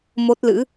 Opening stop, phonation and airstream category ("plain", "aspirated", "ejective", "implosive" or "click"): plain